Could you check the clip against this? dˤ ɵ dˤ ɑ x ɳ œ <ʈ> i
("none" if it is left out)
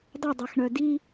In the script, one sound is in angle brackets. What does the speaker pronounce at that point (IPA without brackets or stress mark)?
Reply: d